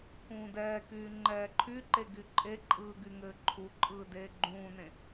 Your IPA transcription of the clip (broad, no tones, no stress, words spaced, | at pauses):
kũːdɛːkyː ŋ͡ǃɛːǃʰyǃe ɡyǃʼeǃʼɯː ɡyŋɘːǃʰuǃʼɯː deːɡ͡ǃũːnẽ